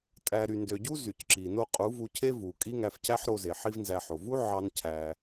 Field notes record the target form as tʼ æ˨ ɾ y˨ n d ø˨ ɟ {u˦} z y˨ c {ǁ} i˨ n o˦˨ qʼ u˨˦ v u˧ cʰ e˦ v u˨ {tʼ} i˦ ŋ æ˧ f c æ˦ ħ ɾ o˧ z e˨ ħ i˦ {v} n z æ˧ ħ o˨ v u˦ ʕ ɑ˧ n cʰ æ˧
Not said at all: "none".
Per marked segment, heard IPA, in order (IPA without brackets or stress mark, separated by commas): u˦, ǁ, kʼ, v